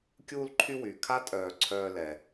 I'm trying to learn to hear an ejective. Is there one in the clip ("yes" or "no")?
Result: yes